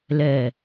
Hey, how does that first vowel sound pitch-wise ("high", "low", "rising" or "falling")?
low